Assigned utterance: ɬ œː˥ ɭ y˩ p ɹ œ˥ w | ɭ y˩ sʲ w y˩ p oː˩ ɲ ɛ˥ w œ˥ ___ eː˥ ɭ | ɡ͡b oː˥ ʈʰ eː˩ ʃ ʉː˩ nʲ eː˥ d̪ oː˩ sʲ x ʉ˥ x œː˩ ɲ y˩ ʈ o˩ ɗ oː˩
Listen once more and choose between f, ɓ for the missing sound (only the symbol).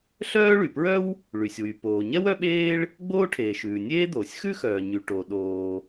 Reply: ɓ